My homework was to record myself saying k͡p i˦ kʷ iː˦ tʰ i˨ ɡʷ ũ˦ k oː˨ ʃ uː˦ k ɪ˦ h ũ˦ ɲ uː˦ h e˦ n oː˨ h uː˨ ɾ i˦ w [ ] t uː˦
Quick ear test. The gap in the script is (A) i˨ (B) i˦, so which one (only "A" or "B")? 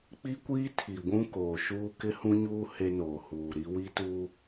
B